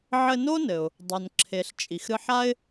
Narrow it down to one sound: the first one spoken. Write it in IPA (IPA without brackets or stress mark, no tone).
ʕ